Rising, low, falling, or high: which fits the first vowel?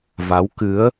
rising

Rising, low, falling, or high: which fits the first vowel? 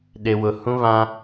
low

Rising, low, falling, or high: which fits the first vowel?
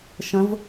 rising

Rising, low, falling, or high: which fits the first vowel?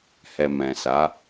low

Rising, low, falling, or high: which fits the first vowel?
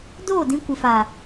falling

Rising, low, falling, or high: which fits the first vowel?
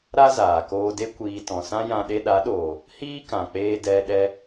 high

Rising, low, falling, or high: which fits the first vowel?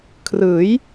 rising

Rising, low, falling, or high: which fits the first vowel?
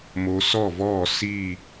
rising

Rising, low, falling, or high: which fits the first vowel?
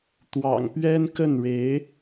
low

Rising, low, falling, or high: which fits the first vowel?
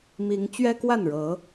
rising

